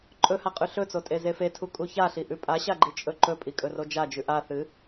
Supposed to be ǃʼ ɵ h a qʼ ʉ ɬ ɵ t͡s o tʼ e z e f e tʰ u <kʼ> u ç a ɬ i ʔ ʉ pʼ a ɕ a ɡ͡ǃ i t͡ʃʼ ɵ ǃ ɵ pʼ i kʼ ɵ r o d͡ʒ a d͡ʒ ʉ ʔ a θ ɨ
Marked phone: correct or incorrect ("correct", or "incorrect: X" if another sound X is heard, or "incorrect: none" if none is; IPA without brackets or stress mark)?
correct